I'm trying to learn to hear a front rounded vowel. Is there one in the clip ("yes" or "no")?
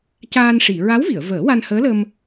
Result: no